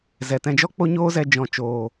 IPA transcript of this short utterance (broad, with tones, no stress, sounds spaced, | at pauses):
z ɛ˨ t ɛ̃˧ d͡ʒ ɔ˦ k͡p o˦ ɲ oː˦ z ɛ˧ d͡ʒ ɔ̃˨ t͡ʃ oː˨